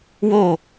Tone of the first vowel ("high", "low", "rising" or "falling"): falling